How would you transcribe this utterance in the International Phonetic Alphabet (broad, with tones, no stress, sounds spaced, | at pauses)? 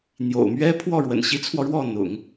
n̪ j o̰˨˩ ʊ̯ m ɥ ɛ˥ pʰ w ɔ˥˩ ɻ w ə̰˨˩ n ɕ i˧˥ t͡sʰ w ɔ˧ ɻ w ɔ˥˩ n̪ ʊ̰˨˩˦ ŋ